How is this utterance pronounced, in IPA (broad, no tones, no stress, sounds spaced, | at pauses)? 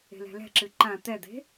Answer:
e̤ l ɛ̤ l ɛ̤ ǁ ɨ ǃ ã t̪ ɛ d̪ e̤